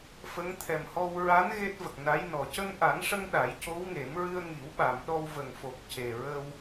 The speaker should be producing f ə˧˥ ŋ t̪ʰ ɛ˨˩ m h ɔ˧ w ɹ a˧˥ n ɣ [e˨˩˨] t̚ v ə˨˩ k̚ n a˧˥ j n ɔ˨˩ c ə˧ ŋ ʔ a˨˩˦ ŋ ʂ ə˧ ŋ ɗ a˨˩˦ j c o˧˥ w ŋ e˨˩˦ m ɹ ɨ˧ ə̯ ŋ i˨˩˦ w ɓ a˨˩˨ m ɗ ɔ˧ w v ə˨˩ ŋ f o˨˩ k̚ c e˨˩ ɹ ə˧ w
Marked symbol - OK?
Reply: no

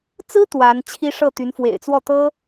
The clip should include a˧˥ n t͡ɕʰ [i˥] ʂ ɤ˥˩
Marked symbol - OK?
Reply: yes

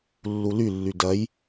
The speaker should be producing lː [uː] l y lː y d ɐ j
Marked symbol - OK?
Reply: no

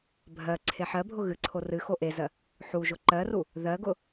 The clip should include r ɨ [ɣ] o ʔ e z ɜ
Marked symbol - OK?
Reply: no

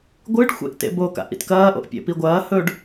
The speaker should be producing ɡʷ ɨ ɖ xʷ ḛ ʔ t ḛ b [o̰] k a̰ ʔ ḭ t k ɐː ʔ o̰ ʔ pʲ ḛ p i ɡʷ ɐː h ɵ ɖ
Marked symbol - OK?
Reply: no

